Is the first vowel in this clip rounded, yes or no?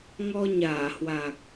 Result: yes